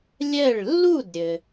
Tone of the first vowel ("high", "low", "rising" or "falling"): falling